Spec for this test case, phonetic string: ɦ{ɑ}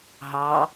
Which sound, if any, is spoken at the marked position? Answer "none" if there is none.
ɑ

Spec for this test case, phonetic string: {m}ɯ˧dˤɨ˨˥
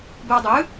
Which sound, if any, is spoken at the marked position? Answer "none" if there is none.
b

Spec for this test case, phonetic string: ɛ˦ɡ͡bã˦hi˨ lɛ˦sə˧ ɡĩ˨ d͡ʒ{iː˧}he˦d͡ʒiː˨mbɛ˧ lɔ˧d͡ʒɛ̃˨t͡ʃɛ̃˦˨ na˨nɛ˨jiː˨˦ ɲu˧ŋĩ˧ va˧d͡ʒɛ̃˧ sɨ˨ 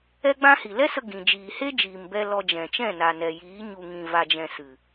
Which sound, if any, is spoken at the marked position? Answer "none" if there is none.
iː˨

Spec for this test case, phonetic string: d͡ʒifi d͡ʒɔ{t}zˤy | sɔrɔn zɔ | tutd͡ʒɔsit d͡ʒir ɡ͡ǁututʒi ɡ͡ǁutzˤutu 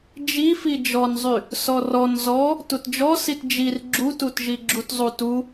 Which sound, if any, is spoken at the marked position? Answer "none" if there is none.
n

